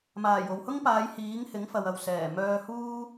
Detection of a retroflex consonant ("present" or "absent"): absent